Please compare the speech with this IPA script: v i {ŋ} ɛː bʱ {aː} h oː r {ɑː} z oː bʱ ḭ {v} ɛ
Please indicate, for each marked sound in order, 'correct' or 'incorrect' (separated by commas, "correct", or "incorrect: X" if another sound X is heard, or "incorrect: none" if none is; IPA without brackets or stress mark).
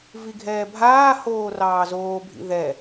incorrect: ɡʱ, correct, correct, incorrect: ð